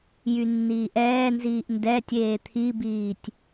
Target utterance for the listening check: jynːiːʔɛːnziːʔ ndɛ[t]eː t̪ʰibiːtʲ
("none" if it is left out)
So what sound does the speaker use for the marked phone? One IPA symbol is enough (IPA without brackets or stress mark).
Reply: tʲ